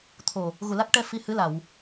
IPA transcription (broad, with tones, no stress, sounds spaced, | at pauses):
t̪ʰ o˨˩ | ɣ u˨˩ l a˦˥ k̚ ʈ ɛ˧ f i˧ h ɨ˧˥ l a˨˩˨ w